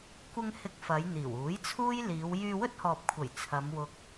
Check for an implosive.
absent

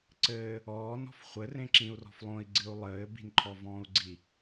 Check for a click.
present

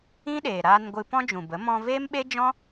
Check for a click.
absent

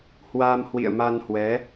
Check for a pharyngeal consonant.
absent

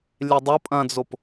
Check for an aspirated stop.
absent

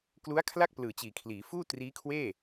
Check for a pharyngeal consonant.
absent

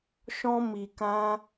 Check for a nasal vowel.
present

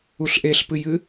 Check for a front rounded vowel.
absent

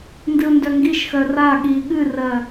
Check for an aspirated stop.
absent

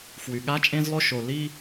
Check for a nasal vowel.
present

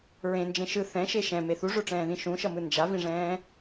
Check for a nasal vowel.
present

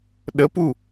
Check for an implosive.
present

